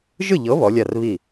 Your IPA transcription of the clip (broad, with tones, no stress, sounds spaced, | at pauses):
ʒ ɯ˥˩ ʎ ɤ˨˥ β ɔ˨˥ lʲ a˥˩ r β i˥˩